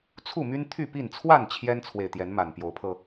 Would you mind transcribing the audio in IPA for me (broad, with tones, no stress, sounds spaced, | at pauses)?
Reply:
t͡sʰ u˥˨ m y˦ n t̪ʰ y˥˨ p i˥˨ n t͡sʰ w a˥˨ n t͡ɕʰ j ɛ˦ n t͡sʰ w e˨ ɪ̯ t̪ j ɛ˨˦ n m a˨˩ n p j o˨˦ ʊ̯ pʰ ɤ˧